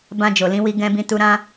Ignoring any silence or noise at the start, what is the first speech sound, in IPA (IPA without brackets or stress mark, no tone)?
b